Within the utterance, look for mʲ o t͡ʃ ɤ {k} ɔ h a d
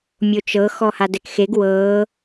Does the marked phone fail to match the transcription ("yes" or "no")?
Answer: yes